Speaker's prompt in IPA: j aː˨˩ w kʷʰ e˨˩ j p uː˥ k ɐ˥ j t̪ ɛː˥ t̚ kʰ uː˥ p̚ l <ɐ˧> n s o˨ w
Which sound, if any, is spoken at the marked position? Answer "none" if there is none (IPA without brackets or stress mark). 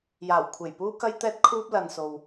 ɐ˨